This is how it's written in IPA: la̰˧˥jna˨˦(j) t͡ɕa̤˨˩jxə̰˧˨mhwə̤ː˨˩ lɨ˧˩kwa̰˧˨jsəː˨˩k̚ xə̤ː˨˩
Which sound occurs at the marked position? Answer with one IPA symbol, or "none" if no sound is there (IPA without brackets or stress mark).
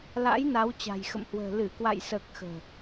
w